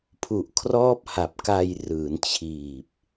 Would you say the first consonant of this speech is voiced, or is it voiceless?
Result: voiceless